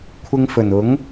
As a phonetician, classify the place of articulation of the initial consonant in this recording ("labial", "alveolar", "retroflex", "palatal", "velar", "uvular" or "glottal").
velar